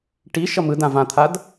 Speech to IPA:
ʈ i ʃ ʌ m ɯ d ã v ã t̪ʰ a d

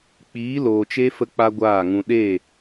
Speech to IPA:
k͡p iː˨˦ l oː˨ t͡ʃ e˦ f ə˦ k͡p a˦ ɡʷ aː˦˨ ŋ ũ˧ ɗ e˦˨

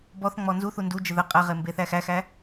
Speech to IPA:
b ɔ θ ŋ͡m ɔ n z u θ u n d u d͡ʒ ə ð ə qʼ ɛ ʁ e m b e θ æ x æ x æ

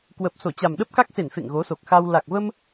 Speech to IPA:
k w əː˨˩ p̚ s o˧˩ t͡ɕ a˨˩ m ɗ ə˦˥ p̚ k a˦˥ k̚ s e˧˩ n f ḛ˧˨ ŋ ɣ o˨˦ s o˨˩ k̚ x a˧ w l a˨˩ k̚ v ə˧ m

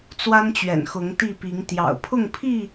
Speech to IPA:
t͡s w a˦ n t͡ɕ ɥ ɛ̰˨˩ n x ʊ˨˦ ŋ t̪ i˥˨ p i˨˦ ŋ t̪ j ɑ̰˨˩ ʊ̯ pʰ ʊ˥˨ ŋ pʰ i˥˨

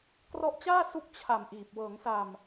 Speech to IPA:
k r ɔ˦˥ ʔ t͡ɕ aː˥˩ s u˥˩ k̚ t͡ɕʰ a˨˩ m ʔ iː˨˩ p̚ w ɤː˩˦ ŋ s a˨˩ m

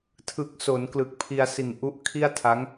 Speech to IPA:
tʰ ɯ˨˩ k̚ s o˩˦ n k l ɯ˨˩ k̚ pʰ i˧ a̯ s i˨˩ n ʔ u˦˥ ʔ kʰ i˥˩ a̯ tʰ a˦˥ ŋ

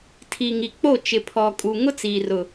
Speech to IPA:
tʰ i˨ ŋ i˨ k͡p o˦˨ t͡ʃ ɪ˨ pʰ ɔ˨ kʼ u˨ ŋ ʊ˦ t͡s iː˨ r ʊ˨

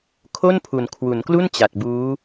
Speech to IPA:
kʰ o˥˩ n pʰ u˨˩ n kʰ w u˩˦ n k l u˥˩ n t͡ɕ a˨˩ t̚ b uː˦˥

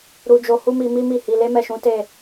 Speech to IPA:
ɾ u˧ d͡ʒ o˧ h u˦ m i˧ m i˦ m i˦˨ h i˧ l e˦ m ɛ˦˨ ʃ ũ˨˦ t e˦˨

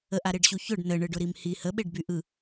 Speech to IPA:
ə ʔ a ɾ e ɖ ɕ u ç ʊ ɖ n ə ɳ ɯ ɖ ʊ ɾ i m h i h ə ɓ e ɖ b y ʔ ɯ

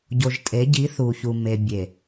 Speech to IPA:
ɟ o˨ ʒ tʼ e˨˦ ɟ i˨˦ θ u˨ ç u˨ m e˨ bʲ e˨

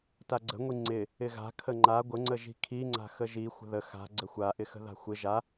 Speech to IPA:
t a ɡ͡ǀ ə̤ ŋʷ i ŋ͡ǀ ɪ | ɪ ɣ a̤ kʰ ə ŋ͡ǃ a ɡʷ ə ŋ͡ǀ ə ʒ i̤ kʰ i ŋ͡ǀ a̤ x ə ʒ i xʷ ə̤ ð ə x a̤ ɡ͡ǀ ə xʷ a ʔ ɪ x ə̤ ð a̤ xʷ ɪ ʒ a

